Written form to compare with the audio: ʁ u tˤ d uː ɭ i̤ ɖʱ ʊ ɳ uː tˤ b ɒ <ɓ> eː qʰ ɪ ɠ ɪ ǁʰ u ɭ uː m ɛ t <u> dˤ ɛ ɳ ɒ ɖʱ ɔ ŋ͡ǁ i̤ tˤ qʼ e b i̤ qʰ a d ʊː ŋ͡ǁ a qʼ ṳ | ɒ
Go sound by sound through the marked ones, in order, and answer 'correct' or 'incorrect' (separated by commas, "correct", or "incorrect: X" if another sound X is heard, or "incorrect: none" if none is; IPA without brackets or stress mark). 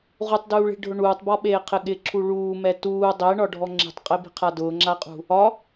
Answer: correct, incorrect: uː